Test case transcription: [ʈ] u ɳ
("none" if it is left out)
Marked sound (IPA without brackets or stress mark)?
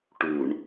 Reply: ʈ